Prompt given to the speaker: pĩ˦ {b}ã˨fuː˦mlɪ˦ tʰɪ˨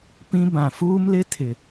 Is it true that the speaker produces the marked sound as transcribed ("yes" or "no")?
yes